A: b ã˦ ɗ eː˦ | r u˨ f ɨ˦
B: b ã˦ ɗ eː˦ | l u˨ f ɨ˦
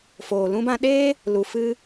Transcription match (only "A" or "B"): B